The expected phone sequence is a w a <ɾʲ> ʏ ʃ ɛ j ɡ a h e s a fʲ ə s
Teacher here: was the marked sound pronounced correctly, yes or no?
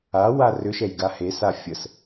no